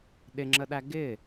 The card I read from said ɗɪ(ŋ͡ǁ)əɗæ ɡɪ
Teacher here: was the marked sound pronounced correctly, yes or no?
yes